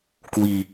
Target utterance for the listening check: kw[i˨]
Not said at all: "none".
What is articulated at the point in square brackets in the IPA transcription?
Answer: i˨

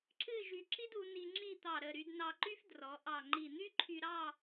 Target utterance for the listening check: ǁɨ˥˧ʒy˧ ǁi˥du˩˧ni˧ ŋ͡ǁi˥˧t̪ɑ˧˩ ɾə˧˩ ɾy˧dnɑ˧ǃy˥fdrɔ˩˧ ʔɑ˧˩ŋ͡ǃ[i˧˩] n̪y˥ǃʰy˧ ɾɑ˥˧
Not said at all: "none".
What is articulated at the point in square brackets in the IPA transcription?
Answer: i˧˩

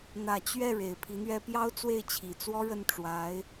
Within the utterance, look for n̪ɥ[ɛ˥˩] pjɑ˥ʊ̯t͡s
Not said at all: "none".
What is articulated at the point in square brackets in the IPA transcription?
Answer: ɛ˥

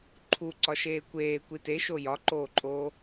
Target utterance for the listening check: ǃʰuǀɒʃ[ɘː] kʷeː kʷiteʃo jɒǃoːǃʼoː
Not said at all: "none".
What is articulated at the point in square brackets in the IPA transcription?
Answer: eː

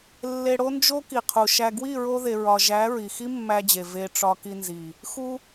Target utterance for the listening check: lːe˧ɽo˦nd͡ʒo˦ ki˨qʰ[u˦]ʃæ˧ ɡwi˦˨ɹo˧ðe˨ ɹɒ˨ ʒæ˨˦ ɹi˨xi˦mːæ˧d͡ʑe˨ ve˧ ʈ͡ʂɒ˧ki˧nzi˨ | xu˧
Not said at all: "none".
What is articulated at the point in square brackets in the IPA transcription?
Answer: u˨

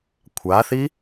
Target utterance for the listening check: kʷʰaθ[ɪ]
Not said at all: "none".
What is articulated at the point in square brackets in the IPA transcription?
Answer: i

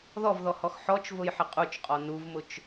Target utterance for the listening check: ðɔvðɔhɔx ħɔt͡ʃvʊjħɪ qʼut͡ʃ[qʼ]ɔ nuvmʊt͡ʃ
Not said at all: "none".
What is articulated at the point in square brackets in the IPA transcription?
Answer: qʼ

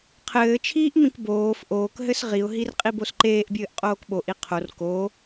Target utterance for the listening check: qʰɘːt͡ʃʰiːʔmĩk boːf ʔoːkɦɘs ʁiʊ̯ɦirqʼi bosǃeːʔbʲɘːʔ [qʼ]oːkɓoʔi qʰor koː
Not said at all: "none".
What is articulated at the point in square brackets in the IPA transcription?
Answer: qʼ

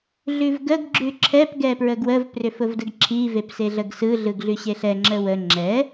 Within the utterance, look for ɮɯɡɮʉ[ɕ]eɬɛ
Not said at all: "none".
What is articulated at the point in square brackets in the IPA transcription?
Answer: ɕ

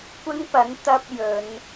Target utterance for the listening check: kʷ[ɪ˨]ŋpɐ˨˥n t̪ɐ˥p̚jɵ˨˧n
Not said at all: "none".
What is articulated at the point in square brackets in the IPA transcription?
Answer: ɪ˥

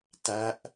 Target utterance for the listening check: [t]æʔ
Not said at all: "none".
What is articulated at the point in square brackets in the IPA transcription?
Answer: t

